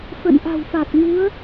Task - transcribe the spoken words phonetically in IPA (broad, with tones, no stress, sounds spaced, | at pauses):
f ə̰˧˨ n ʔ a̤˨˩ w f a˨˩ t̚ ŋ u˨˦ ə̯